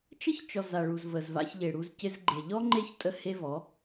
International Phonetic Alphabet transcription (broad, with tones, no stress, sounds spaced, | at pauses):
t͡ʃ ə˦ ç t͡ʃ ɔ˨ z a˨ ɭ u˨ z v ə˨ z v a̰˧ ç ʎ e˨ ɽ u˧ z c ɪ˧ z ɡ͡ǃ e˨ ʎ ɔ˦ ŋ͡ǃ e˦ ç tʼ ə˦ h e˦ v ɔ˨˦